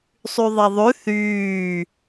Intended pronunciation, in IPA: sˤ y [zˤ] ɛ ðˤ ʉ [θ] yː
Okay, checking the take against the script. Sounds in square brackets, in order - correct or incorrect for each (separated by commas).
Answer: incorrect, correct